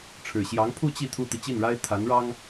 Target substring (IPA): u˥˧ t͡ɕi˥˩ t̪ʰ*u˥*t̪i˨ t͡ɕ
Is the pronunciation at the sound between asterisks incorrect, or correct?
correct